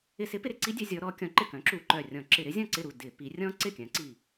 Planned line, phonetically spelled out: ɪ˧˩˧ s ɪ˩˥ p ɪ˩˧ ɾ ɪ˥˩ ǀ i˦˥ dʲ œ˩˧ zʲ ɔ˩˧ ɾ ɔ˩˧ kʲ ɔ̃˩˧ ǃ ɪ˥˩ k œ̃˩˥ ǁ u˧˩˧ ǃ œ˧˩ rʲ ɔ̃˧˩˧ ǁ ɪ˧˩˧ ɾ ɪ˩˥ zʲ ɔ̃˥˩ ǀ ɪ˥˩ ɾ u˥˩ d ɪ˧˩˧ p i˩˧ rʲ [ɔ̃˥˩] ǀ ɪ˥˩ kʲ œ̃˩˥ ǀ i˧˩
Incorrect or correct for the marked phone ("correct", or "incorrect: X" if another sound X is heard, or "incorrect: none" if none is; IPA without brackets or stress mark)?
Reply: incorrect: ɔ̃˦˥